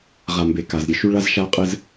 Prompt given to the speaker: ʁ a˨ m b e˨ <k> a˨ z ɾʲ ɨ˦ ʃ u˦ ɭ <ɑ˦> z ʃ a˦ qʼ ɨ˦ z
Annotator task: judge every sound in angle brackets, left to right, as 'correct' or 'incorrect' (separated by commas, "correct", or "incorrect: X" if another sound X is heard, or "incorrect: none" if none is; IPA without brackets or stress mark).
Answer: correct, incorrect: a˦